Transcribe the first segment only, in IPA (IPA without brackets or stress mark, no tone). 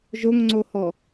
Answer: ʒ